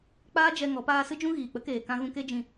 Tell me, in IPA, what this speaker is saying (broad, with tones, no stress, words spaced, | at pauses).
k͡paː˦d͡ʒɛ˧ ŋɔ˨˦paː˦ sɨ˦d͡ʒũ˦ɣiː˨k͡pə˦ keː˨kã˧ ɣũ˧ke˦d͡ʒĩ˧